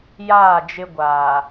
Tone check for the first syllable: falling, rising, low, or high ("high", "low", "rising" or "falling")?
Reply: falling